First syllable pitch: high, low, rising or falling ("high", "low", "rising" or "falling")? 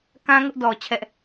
high